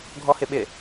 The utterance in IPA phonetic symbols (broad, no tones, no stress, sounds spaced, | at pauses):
ɡʱ ɔ h ɪ ɓ ɪ